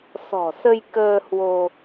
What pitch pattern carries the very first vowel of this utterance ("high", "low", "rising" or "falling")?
low